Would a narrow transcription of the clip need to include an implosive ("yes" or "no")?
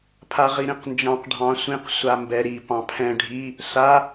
no